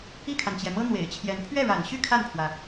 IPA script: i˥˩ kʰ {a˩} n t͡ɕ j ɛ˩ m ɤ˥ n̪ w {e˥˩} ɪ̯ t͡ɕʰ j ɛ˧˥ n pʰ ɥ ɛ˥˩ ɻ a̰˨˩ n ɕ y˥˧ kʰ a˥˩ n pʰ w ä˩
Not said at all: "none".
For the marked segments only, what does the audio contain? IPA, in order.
a˩, ḛ˨˩

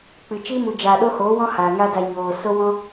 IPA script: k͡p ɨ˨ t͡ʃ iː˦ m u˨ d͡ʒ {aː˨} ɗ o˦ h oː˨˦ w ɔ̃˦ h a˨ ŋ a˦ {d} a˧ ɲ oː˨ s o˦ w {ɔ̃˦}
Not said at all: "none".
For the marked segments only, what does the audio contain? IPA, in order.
aː˨, d, ɔ̃˦

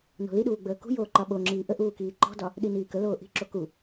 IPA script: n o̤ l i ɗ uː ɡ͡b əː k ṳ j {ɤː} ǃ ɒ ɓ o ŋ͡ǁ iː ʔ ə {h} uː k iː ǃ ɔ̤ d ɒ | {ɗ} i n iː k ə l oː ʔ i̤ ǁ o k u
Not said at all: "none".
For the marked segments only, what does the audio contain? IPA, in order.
oː, ʔ, ɗ

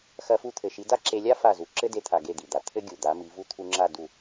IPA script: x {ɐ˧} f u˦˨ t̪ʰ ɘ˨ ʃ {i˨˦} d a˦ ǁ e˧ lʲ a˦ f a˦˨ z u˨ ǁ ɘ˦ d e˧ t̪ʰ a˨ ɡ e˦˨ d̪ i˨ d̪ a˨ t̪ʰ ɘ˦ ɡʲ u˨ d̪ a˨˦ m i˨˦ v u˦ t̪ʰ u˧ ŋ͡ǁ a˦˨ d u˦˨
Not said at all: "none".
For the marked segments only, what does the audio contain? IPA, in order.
ɐ˧, i˨˦

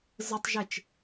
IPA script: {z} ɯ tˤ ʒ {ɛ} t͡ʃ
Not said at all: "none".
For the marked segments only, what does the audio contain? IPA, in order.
z, e

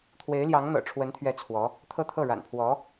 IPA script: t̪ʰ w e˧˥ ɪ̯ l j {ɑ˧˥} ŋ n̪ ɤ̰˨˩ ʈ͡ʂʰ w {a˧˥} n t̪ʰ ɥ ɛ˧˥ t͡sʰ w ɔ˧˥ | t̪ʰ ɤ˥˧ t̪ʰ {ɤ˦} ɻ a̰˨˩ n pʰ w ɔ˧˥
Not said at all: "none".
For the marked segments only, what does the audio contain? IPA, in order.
ɑ˧˥, ə˧˥, ɤ˥˩

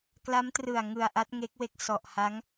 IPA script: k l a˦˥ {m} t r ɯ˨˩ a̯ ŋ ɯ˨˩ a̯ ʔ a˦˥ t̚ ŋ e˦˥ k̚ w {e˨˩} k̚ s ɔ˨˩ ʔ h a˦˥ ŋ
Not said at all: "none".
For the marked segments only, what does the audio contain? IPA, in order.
m, e˦˥

